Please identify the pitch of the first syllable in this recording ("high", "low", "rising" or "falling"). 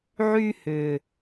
high